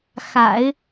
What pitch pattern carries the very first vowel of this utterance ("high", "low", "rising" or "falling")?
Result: low